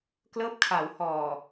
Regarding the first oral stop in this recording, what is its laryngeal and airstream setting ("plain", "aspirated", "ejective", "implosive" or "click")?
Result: plain